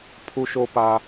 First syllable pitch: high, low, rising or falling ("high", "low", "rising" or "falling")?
high